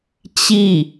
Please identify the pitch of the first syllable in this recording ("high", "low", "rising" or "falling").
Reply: falling